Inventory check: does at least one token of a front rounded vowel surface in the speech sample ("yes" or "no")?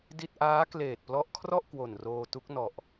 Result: no